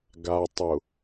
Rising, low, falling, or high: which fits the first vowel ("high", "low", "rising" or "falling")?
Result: low